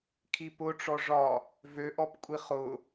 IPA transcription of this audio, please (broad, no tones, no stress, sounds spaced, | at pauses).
kʰ i p ʊ ʈ͡ʂ ɔ ʐ ɒ | v ø ʔ ɔ p kʷʼ i χ ʊ